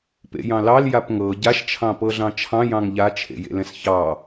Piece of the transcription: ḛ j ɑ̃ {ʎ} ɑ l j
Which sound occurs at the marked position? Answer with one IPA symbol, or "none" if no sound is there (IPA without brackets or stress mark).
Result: l